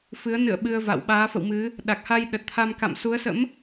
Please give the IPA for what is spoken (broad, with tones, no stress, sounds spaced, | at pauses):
f ɨ˨˦ ə̯ n ɨ̰˧˨ ə̯ ɓ ɨ˧ ə̯ v a̰˧˨ w ɓ aː˨˦ f ə̰˧˨ w m ɨ˨˦ | ɗ a˨˩ k̚ h a˧ j ɗ ə˨˩ t̚ t̪ʰ a˧ m k a̰˧˨ m s u˨˦ ə̯ s ə̰˧˥ m